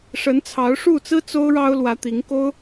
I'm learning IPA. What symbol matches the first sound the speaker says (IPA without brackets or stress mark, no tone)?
ʂ